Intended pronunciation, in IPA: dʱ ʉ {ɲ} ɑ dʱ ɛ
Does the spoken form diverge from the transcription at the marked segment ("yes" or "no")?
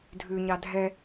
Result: no